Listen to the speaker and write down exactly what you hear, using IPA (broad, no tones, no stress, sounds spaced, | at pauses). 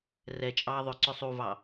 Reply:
r ɛ t͡ʃʼ ɑ ðˤ ʏ ǀ ʏ sˤ u v ɑ